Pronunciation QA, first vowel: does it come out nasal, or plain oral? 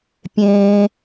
nasal